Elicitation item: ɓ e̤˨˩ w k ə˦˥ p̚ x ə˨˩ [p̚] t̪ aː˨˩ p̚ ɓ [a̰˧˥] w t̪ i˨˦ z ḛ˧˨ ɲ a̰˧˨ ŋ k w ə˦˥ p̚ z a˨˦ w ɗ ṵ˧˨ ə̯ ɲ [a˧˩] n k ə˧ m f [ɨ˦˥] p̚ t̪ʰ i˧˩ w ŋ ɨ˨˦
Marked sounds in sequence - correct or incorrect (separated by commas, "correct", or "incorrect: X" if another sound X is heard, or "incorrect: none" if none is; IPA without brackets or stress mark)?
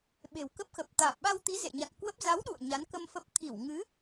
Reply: correct, incorrect: a˧, incorrect: a˨˦, incorrect: ə˦˥